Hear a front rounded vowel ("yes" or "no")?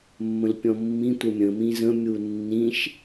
no